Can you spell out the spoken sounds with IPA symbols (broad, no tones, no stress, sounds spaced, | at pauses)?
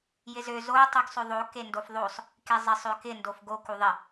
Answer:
j ɪ z ø z o tˤ u ɡ sˤ ø ðˤ o k e n d o f ðˤ o sˤ | k e zˤ ɪ sˤ ø k ɪ n d o f ɡ o k u ðˤ ɪ